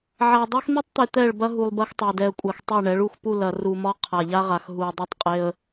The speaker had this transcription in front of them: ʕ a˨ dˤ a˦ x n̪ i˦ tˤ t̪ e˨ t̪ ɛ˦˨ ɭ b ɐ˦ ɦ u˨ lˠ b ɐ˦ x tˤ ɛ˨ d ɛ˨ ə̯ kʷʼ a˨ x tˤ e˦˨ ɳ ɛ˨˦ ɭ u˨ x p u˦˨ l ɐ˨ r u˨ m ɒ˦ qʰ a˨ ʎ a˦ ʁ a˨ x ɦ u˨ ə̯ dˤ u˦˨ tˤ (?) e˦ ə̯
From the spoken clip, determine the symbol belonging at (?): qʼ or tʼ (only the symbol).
qʼ